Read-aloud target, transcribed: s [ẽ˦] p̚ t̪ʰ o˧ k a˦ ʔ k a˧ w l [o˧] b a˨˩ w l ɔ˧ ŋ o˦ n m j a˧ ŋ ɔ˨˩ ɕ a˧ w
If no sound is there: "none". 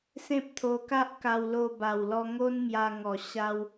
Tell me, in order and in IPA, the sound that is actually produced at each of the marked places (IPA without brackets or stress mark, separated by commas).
ẽ˦, o˧